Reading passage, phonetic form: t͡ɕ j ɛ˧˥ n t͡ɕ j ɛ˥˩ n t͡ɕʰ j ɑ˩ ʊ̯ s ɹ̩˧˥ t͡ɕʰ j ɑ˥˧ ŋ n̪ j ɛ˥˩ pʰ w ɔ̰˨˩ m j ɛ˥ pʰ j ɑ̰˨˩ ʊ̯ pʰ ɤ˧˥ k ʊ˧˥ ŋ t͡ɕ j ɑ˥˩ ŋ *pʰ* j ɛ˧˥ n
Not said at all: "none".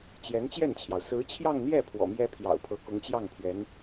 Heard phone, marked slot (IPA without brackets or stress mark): pʰ